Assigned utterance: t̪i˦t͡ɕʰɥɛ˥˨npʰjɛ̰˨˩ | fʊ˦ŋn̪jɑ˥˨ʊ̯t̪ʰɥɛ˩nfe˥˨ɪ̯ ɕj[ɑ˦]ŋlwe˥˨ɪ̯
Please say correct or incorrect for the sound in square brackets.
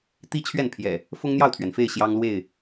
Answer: correct